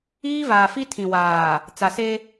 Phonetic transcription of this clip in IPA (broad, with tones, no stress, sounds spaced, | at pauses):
iː˦ v aː˨ f i˦ tʰ ĩ˨ w aː˨ | t͡s a˨ s e˦